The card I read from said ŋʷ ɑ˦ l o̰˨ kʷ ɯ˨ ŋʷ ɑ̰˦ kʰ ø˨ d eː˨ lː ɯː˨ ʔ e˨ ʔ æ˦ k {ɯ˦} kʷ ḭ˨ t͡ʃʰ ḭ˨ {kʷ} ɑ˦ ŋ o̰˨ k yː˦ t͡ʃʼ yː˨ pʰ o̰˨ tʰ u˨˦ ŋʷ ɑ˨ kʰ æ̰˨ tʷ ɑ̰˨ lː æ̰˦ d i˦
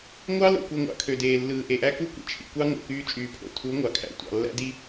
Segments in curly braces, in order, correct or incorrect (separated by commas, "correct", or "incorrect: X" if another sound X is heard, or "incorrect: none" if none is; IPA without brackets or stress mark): incorrect: u˦, correct